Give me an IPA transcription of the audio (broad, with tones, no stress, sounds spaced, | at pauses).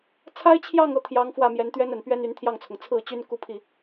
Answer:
t͡sʰ a˥ ɪ̯ t͡ɕʰ j ɑ˥˧ ŋ ɤ˥˩ t̪ʰ j ɑ˧˥ ŋ f w ä˥˩ m j ɛ˧˥ n t̪ ɥ ɛ˥ n ə˨˩ n p ɥ ɛ˥ n y˧˥ n t̪ʰ j ɑ˥˩ ŋ t͡sʰ ʊ˩ ŋ t͡sʰ ɹ̩˥˩ t͡ɕ y˥ n k u˥˧ pʰ i˥˩